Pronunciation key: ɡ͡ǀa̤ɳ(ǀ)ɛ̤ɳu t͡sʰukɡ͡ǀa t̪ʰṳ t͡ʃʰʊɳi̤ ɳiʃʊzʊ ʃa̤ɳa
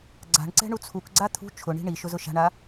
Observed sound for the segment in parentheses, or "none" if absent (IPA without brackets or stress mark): ǀ